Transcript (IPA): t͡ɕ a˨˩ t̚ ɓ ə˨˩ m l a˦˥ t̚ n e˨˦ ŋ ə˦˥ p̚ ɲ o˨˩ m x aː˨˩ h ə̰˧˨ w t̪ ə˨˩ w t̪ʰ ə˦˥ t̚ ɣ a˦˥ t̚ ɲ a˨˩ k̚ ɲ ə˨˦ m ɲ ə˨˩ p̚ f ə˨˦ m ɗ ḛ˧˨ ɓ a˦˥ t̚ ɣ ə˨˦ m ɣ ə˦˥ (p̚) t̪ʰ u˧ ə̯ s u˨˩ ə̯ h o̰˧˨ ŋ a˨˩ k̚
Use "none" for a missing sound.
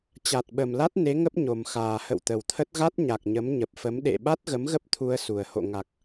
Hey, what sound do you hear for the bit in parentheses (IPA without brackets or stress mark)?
p̚